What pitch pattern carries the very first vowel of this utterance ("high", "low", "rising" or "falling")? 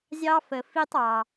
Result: high